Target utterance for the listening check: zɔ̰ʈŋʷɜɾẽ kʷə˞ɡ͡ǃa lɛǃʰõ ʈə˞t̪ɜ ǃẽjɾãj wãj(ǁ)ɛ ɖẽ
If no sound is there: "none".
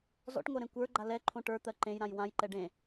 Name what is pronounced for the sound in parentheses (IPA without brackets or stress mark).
ǃ